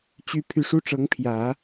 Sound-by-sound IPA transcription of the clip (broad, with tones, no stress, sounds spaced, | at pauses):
t͡ɕ y˥ pʰ y˥˩ ʂ u˥ ʈ͡ʂ ɤ˧˥ ŋ pʰ j ä˨˩˦